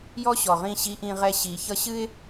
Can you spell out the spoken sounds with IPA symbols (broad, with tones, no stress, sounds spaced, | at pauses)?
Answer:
j ɔ˦ ɕ ɔ˨ ʁ ĩ˦˨ ɕ i˦ ʔ ĩ˦ ʁ ɛ˦ ɕ i˨ ç ʌ˦ ɕ ɨ˦ ɪ̯